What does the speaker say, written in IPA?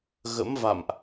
ɣə̰˧˥mva̰˧˨mʔ

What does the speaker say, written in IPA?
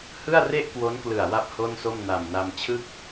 hɯ˥˩a̯re˥˩ʔkwo˦˥nklɯ˨˩a̯ wa˥˩p̚ho˥˩nso˥˩m na˨˩mna˧mt͡ɕʰɯ˥˩k̚

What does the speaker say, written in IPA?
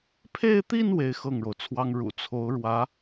pʰe˥˧ɪ̯t̪i˥˧n we˥˧ɪ̯xɤ˥˩ŋɻo˩ʊ̯t͡sʰwɑ˥ŋ ɻṵ˨˩t͡sʰo˧˥ʊ̯ ɻwä˧˥

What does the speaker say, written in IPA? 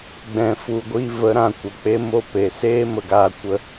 ɡ͡bɛ̃˨fu˨ɡʷi˧ və˨˦ɾã˨kʷə˨ k͡pe˦mo˦˨pe˨ seː˦mə˨ɡaː˧ kʷə˦

